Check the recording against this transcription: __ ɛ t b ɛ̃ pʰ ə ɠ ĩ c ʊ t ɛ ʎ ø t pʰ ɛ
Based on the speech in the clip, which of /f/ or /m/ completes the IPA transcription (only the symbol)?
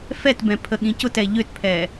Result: f